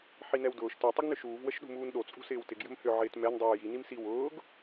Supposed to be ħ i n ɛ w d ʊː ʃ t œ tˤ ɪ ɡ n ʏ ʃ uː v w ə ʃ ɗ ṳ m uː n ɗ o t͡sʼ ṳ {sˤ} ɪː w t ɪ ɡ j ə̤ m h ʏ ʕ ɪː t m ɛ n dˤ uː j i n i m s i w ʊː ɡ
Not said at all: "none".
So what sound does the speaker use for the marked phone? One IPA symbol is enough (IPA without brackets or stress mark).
s